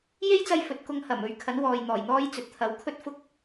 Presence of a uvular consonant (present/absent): absent